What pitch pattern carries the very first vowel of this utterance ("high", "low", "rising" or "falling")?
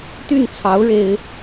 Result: falling